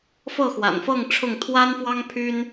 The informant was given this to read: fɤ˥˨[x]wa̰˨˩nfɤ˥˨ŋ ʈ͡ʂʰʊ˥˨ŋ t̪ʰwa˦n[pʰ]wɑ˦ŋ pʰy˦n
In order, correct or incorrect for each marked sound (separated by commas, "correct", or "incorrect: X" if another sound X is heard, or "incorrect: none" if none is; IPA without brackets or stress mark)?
correct, incorrect: f